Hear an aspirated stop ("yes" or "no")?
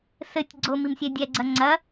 no